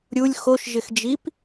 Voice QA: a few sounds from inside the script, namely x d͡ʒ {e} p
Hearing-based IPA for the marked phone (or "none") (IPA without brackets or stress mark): i